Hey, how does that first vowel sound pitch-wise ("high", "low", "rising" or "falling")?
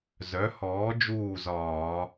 rising